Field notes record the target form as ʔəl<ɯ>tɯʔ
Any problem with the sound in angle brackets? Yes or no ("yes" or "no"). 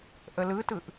no